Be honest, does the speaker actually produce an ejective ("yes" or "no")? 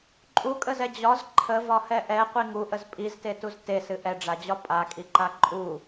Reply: yes